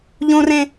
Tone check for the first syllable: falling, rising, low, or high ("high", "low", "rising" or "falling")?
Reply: high